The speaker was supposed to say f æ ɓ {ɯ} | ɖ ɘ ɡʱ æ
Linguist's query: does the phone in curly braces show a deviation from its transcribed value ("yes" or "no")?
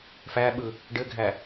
no